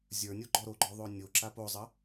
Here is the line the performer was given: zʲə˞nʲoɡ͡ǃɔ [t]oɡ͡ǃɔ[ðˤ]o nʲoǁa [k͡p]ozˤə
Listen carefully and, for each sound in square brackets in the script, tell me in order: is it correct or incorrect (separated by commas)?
incorrect, correct, incorrect